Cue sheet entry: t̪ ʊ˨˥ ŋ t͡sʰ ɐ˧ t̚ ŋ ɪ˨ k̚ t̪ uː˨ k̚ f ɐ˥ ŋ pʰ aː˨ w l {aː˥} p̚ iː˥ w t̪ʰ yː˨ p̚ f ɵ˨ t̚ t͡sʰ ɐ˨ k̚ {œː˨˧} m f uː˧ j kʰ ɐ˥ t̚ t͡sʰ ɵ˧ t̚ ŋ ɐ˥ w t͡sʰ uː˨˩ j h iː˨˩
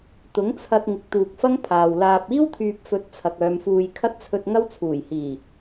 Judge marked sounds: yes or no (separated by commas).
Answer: no, yes